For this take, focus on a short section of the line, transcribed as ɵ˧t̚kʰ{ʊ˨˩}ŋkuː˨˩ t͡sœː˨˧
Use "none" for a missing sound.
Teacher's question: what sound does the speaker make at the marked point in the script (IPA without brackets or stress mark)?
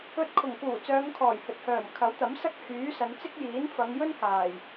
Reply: ʊ˨˩